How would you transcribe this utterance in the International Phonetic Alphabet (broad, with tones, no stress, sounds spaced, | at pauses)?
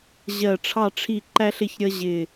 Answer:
ʑ ɜ˧˩ ʈ͡ʂʰ ɑ˥˨ ʈ͡ʂʰ i˥˨ ǃ æ˥ ɬ ɪ˥˨ ç ɾʲ ʌ˥ ʑ ɪ˧˩